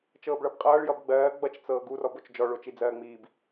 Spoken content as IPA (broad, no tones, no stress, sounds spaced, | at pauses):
t͡ʃ ɤː b ɭ ʌ b qʼ ʌː ɭ j ʌ b ɡ͡b ɜː ɡ͡b ʌ t͡ʃ t͡s ɤː ɡ u r ɔ b o t͡ʃ d͡ʒ ɔ ɭ o t͡ʃ i d͡z ɜː ŋ͡m iː b